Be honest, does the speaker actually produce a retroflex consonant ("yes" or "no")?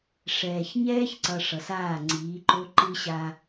yes